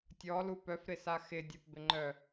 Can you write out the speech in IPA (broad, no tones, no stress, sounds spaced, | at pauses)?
tʲ ɔ l u p œ f ɾ ɪ s a x ɪ dʲ ɜ p b ɪ ŋ͡ǃ œ